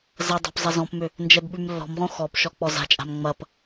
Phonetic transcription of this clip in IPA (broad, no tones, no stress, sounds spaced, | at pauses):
z ɐ dˤ a̤ p zˤ ɐ z ɔ̃ p m ʏ | n d͡ʒ ɛ b ɓ ʉ m lː ɔ̤ m ʁ õ x ɔ p ʃ ɔ k͡p ɔ z a̤ t͡ʃʼ a̤ m ŋ͡m ɐ p